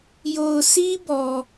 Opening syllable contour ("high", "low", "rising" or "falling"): low